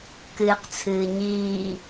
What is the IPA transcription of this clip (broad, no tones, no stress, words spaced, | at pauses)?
kɨːqt͡sʰɨːɲiː